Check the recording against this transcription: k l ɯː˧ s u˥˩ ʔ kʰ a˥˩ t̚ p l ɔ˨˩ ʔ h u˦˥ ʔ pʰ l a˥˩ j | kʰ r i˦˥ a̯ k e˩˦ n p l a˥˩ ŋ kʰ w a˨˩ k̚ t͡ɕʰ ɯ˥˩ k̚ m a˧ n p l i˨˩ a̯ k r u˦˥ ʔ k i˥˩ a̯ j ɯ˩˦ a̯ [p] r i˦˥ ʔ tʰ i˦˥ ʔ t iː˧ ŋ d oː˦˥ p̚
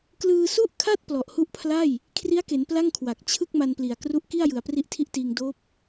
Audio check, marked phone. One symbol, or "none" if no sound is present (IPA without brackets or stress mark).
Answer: p